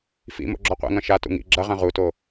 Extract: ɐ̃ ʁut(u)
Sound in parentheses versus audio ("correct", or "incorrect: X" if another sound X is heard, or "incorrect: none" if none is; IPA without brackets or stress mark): incorrect: o